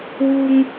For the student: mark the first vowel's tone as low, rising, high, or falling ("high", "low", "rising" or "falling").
high